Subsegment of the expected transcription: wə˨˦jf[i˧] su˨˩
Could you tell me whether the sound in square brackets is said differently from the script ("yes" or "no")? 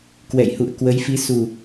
yes